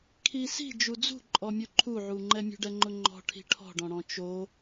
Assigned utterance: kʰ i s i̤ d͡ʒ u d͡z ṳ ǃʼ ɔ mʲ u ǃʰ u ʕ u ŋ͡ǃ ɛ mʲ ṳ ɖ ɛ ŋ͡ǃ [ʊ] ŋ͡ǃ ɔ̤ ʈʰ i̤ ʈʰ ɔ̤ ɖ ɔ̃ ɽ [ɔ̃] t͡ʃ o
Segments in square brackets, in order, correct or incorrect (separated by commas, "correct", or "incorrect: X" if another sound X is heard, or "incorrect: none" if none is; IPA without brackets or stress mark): correct, correct